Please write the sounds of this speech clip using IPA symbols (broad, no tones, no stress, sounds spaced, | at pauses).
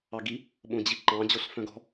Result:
ɑ ɡ i | ɓ õ d͡ʑ i ǃ ɑ̃ d͡ʑ o ɬ f œ̃ ɡ ɔ̤